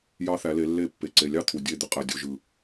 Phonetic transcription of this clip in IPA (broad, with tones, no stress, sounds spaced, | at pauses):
j ɑ˦ θ æ˨˦ l e˨˦ lː e˦˨ pː e˨ ǀ e˨ lʲ ɑ˦ t̪ʰ u˨ dʲ e˦˨ d̪ ɯ˦ qʼ æ˨ dʲ o˨ ʒ ɯ˨